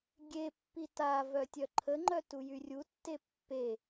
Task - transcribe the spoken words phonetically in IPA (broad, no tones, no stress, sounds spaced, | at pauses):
ɡʲ e pː i t a v œ tʲ œ ǃʰ ə ŋ͡ǃ œ t u j y rʲ u tː e pː e